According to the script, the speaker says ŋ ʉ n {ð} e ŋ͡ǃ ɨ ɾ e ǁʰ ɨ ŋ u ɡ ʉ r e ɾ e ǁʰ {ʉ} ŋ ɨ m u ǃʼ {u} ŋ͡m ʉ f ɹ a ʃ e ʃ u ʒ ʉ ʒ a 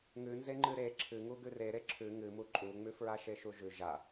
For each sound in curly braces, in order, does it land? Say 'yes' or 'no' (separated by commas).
no, yes, yes